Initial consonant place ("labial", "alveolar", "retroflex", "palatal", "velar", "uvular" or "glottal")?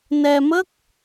alveolar